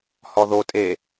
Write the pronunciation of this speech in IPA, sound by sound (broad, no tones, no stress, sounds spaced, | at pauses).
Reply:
h ɔ ð o tʼ e